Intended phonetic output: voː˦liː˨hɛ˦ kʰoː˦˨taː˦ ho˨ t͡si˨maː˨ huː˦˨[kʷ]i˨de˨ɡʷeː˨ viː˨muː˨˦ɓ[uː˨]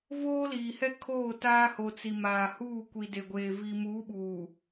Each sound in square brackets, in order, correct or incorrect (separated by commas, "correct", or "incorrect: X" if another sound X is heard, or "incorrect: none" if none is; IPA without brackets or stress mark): correct, correct